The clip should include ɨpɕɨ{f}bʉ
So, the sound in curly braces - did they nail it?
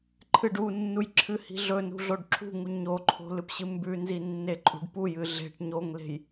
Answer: no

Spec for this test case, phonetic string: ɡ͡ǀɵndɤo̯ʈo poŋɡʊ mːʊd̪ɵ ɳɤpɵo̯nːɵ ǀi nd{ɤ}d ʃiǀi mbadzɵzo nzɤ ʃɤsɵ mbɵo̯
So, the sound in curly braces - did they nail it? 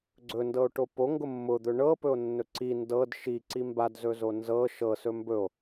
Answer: yes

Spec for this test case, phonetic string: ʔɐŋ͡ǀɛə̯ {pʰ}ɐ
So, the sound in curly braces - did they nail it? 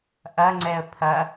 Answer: yes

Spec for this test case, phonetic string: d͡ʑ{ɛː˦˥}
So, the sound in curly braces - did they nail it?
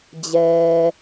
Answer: no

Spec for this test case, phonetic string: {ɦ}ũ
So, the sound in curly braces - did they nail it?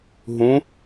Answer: yes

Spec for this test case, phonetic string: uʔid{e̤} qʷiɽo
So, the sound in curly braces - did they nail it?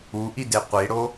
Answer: no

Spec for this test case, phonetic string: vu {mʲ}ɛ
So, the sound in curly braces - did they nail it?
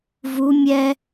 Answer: yes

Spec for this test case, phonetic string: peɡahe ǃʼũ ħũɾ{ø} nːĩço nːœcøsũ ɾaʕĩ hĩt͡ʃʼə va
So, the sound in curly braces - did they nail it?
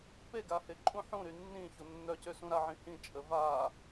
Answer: no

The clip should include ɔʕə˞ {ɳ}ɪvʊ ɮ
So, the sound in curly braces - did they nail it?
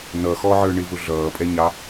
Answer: yes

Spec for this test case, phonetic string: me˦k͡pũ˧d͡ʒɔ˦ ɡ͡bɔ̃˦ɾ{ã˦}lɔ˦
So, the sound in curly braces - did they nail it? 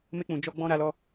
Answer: no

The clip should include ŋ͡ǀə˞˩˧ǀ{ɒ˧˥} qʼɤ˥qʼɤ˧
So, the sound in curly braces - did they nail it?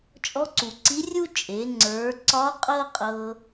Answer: yes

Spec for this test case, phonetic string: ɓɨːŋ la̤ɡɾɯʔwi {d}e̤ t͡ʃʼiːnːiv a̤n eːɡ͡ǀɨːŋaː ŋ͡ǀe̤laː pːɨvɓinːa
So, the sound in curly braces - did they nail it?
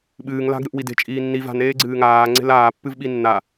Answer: yes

